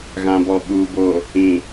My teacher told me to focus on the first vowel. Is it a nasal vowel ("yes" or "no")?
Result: yes